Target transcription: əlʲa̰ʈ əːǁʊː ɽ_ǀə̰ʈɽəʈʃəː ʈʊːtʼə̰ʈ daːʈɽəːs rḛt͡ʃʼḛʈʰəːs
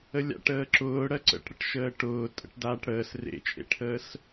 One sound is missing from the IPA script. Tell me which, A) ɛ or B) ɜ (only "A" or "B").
B